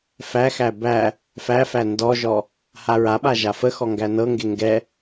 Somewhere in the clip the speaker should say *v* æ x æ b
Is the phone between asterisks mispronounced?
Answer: yes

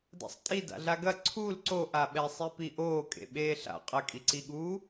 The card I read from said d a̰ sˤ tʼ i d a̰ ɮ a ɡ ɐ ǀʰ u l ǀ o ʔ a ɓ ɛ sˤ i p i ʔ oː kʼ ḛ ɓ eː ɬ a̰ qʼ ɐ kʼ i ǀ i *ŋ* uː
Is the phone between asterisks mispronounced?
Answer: yes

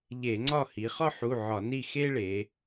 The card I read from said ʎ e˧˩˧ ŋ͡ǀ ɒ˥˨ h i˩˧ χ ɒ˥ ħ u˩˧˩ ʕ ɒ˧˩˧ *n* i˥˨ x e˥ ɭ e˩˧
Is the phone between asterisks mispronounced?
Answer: no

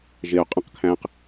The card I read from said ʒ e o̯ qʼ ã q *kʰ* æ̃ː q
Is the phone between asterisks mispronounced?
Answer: no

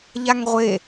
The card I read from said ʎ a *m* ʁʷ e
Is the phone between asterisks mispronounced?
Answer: yes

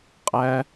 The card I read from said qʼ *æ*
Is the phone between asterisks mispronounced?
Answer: no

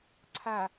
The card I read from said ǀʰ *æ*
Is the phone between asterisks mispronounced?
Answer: yes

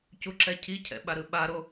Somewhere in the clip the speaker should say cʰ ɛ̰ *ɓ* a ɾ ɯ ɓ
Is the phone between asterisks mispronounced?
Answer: no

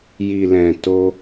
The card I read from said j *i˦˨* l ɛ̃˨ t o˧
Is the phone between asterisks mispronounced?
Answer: yes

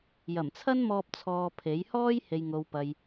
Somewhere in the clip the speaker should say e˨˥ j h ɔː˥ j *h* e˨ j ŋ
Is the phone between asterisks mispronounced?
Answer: no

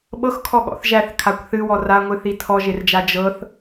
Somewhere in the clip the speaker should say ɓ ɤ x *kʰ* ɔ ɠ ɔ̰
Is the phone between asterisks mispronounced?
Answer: no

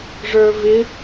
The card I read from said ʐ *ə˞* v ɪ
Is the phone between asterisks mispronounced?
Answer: no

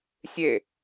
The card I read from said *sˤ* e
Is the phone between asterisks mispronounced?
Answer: yes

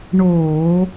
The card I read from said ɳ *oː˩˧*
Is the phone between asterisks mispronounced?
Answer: yes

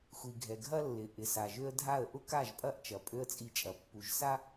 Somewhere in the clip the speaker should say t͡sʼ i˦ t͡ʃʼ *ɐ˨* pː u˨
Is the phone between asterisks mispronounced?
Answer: no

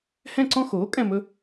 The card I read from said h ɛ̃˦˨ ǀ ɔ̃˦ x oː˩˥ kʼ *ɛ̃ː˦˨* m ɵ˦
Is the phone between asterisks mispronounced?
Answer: yes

